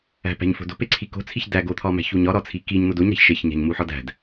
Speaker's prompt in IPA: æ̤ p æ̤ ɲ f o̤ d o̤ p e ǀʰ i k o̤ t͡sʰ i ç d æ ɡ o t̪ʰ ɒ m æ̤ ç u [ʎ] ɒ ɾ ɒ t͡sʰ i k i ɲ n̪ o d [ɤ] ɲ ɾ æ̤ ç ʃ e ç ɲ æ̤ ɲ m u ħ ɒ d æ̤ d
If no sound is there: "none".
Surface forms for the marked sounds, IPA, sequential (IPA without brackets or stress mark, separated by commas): ɲ, o